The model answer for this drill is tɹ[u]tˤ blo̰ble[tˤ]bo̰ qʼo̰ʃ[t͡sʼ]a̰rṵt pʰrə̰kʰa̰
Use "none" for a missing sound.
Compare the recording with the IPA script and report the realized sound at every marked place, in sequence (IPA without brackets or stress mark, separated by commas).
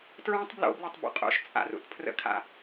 ũ, tˤ, t͡sʼ